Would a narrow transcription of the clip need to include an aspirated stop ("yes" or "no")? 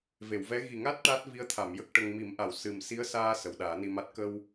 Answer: yes